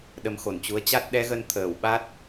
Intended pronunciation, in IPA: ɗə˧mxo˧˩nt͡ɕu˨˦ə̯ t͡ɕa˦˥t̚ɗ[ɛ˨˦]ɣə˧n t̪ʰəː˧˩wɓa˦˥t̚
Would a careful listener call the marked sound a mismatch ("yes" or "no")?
no